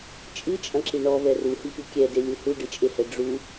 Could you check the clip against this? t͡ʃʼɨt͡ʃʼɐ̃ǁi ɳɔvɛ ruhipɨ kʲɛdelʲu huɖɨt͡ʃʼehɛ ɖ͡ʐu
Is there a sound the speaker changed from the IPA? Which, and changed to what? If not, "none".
none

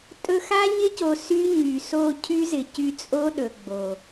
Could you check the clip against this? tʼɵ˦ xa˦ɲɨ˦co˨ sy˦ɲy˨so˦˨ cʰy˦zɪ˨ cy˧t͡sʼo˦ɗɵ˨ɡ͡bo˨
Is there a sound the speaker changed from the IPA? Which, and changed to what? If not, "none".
ɨ˦ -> ɪ˦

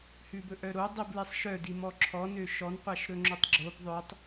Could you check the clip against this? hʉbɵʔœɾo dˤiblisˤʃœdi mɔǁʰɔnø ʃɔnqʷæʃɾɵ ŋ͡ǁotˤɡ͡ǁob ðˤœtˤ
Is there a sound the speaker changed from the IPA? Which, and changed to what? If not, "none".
none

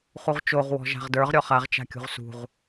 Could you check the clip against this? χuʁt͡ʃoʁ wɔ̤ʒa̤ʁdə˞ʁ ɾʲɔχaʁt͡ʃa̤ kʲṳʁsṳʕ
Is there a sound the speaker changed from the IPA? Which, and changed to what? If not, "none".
ʕ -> ʁ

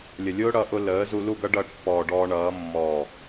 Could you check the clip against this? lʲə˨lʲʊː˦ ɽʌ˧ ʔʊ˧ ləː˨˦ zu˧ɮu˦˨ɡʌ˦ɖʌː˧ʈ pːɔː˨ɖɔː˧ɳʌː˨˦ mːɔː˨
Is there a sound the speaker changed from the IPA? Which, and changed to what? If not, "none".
ɮ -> l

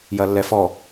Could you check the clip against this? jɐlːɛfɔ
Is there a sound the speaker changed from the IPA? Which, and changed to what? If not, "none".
none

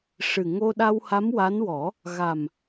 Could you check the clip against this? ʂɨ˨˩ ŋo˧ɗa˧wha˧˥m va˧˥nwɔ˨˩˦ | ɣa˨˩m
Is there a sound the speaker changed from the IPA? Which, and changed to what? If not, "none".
v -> w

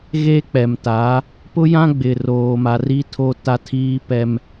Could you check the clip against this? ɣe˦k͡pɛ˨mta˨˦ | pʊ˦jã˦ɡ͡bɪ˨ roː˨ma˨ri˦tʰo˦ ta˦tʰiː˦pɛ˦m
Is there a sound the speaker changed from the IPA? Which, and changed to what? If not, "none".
none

